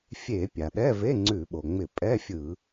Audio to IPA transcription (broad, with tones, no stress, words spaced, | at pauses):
fʲe˧˩˧ pʲa˩ɗɛ˧˥˧ve˧˥˧ ŋ͡ǀʉ˧˩˧ɓo˩ŋ͡mɪ˧˩˧ pʼɛ˧˥˧fʲɯ˧˩˧